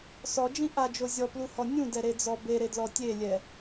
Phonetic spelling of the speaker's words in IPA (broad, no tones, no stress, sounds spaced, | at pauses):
s ɔ d͡ʒ ĩ ʔ a d͡ʒ o zʲ ɔ p l u h ɔ nʲ ũ d ɛ ɾ e d͡z ɔ b e ɾ e d l ɔ tʲ e lʲ ɛ